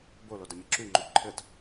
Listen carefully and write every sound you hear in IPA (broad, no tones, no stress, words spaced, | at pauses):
bolodɘ mʲɘǁyŋ͡ǃo ǃʰɘt